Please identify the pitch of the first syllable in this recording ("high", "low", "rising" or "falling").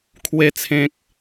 low